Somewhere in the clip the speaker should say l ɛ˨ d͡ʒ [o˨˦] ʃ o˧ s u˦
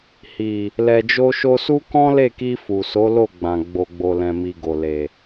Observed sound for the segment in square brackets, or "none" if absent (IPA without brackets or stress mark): o˧